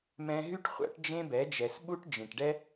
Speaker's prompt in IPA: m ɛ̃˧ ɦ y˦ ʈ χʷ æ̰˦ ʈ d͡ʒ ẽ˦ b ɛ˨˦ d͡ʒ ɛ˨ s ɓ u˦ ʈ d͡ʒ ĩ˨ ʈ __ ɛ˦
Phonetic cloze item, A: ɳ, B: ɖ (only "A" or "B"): B